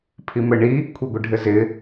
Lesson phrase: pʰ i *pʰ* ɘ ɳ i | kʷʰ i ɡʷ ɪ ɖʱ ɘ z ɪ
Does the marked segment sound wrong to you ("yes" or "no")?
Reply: yes